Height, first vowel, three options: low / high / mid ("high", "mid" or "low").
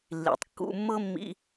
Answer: high